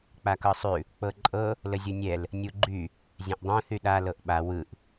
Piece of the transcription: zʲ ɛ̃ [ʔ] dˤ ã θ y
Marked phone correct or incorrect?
correct